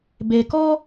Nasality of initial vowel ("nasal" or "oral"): oral